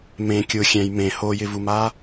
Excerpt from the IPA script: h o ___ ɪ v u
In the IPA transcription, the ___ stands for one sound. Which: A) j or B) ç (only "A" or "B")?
A